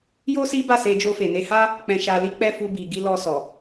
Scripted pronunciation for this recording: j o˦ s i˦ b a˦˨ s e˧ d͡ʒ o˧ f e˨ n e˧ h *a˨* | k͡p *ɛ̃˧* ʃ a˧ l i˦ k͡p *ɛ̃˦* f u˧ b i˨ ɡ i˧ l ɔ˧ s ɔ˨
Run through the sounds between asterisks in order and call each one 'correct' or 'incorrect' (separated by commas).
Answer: incorrect, correct, incorrect